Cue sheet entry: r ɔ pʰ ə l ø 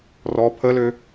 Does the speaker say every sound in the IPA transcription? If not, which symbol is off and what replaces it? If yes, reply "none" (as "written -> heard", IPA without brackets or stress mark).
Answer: none